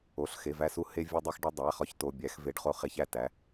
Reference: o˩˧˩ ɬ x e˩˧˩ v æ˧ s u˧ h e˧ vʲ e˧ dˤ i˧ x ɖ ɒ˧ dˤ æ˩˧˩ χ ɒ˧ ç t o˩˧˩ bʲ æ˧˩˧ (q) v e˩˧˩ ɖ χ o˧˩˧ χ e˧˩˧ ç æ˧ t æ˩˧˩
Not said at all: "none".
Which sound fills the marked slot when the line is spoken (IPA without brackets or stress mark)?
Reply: x